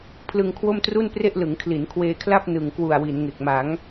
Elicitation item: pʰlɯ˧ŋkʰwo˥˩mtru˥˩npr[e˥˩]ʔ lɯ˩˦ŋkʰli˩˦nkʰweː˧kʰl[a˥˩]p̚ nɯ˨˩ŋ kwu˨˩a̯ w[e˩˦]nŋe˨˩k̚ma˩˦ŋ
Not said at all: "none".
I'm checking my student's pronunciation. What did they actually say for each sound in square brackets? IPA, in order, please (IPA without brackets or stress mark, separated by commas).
e˥˩, a˥˩, i˩˦